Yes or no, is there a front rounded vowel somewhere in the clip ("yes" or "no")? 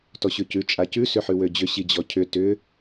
yes